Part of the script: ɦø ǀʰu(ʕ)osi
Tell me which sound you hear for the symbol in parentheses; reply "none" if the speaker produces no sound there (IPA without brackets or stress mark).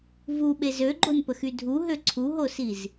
ɦ